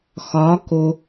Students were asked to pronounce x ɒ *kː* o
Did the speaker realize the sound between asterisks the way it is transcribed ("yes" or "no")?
no